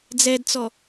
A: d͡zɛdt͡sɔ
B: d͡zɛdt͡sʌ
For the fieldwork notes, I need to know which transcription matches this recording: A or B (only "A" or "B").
A